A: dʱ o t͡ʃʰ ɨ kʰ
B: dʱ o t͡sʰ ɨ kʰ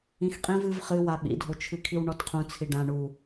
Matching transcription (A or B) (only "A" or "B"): A